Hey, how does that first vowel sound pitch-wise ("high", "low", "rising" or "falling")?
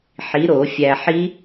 rising